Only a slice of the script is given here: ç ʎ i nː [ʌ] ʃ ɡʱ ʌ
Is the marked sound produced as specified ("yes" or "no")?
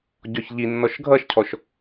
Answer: no